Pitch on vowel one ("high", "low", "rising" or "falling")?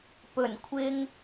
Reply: low